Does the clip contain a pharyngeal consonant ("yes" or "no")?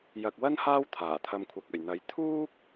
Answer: no